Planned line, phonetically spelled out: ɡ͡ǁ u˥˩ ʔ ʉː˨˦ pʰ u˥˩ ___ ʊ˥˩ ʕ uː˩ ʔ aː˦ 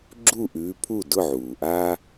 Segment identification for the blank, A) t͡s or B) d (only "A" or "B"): B